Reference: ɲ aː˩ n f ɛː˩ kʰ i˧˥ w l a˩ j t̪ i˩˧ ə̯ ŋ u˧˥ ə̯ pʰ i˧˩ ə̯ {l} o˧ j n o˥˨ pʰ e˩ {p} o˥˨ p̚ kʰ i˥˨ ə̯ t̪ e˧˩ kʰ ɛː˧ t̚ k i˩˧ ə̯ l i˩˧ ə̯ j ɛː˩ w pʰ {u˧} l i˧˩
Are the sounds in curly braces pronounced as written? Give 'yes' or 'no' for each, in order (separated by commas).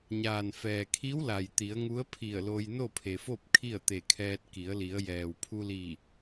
yes, no, yes